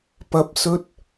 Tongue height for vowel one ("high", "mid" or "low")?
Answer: low